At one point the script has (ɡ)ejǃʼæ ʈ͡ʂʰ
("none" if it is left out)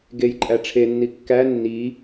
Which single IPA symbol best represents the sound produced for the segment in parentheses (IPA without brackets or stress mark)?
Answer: ɡ